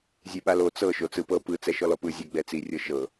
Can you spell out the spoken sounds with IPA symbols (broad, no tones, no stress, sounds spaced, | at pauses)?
zʲ e ɓ a l o t͡s ɤ ʃ o t͡s ɯ p ɤ p ɯ t͡s ɛ ʃ ɔ l ɔ p ɯ zʲ ɛ ɡ͡b ɛ t͡s i rʲ ɤ ʃ ɤ